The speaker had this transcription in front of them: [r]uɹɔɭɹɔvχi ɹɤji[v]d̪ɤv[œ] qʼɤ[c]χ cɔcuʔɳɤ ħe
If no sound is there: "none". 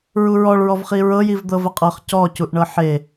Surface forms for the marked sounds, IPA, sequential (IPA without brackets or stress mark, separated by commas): ɹ, v, ə, none